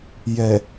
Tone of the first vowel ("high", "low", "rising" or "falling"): low